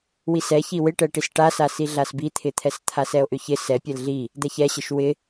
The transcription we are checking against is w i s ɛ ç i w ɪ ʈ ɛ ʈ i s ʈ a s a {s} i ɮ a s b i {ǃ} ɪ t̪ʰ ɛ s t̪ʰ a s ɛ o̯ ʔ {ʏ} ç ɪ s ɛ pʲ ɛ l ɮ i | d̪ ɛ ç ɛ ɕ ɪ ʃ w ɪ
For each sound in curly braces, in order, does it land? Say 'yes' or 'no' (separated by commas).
yes, no, yes